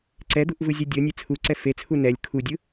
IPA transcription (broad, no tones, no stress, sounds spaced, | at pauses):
ǀ ɛ d̪ u ʔ v ɯ zʲ ɤ dʲ ɤ nʲ e t͡sʰ u ǀ ɛ f e t͡sʰ u n ɛ lʲ kʰ u dʲ ɯ